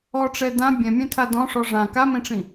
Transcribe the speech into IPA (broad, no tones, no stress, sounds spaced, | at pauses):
ɔ ʈ͡ʂ ɛ d ã bʲ ɛ̃ mʲ ɛ̃ tʰ a d ɔ̃ ʂ ɔ ʐ ã k a m ẽ ʈ͡ʂ ĩ